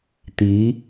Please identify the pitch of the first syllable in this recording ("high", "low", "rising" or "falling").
rising